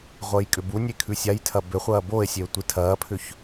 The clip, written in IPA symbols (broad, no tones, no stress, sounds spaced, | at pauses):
ʁʷ əː j kʼ ʏ b u nʲ e kʰ ʉ sʲ a j tʰ ɐ b ʏ χʷ ɐː b o e̯ sʲ e o̯ tʷ i tʰ ɐː pʰ ʏ ç